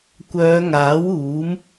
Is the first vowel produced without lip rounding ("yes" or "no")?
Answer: no